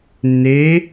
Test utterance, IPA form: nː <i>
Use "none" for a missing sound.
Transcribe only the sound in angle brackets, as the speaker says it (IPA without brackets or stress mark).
e